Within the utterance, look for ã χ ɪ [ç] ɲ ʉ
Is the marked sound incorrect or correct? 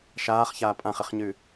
incorrect